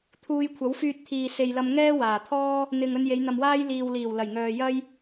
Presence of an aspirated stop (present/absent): present